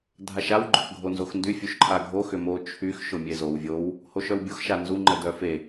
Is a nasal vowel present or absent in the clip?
absent